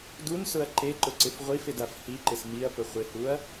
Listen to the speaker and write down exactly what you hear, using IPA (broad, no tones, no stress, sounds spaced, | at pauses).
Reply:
d u n s ʊ ɐ̯ ǃ e ǃ ʊ ǀ ɪ f ʁʷ i f ɪ d a f h i ǃ ɪ s m i ɐ̯ p ʊ χʷ ɪ h u ɐ̯